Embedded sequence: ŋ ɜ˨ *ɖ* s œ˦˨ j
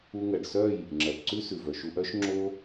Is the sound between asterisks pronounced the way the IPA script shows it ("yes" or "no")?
yes